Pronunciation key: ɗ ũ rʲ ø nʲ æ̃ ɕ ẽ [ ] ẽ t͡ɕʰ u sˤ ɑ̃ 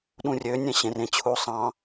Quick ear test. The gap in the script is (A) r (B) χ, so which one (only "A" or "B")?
A